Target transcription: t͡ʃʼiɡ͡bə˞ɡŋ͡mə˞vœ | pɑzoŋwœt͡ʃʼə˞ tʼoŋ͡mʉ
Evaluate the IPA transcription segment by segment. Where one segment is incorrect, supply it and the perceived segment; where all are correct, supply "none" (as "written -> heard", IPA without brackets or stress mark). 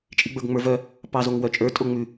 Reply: none